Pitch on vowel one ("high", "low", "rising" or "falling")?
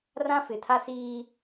high